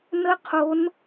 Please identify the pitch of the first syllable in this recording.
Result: high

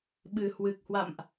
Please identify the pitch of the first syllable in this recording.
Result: low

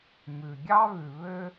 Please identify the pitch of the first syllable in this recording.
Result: low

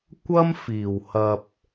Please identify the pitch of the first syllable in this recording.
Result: high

